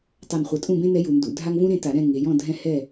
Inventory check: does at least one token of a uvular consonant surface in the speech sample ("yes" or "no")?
yes